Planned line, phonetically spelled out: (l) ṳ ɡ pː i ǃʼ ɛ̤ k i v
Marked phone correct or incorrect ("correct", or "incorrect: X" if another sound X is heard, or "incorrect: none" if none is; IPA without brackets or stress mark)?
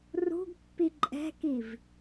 incorrect: r